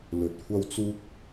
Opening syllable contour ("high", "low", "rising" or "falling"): low